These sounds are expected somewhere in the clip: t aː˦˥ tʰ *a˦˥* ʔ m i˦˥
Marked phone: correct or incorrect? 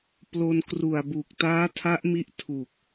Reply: correct